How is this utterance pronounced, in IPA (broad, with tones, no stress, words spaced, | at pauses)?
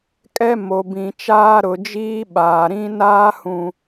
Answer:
kʼɛ˦mo˨ bĩ˨t͡ʃaː˦ ɾʊ˨ d͡ʒiː˦ɓaː˨ɾĩ˦ naː˦hũ˨